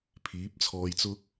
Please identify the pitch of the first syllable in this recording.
rising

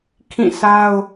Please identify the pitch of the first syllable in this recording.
falling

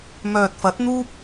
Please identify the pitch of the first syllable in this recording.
low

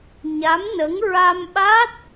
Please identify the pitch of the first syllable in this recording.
rising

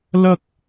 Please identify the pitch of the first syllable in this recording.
high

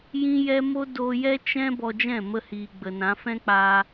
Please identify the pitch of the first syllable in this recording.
high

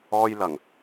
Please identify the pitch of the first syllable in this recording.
high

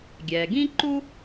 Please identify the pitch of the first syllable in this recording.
low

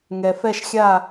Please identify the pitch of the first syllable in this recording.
low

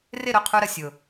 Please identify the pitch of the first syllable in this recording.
falling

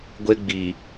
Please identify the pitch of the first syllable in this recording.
high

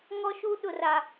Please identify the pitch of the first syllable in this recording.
high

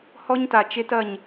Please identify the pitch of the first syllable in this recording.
high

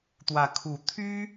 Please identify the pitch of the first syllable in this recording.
rising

